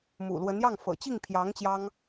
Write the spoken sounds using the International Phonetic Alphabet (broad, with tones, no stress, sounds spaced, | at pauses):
m ṵ˨˩ l w ə˧˥ n j ɑ˥˩ ŋ f ɤ̰˨˩ t͡ɕ i˥˩ ŋ pʰ j ɑ˧˥ ŋ t͡ɕ j ɑ˥ ŋ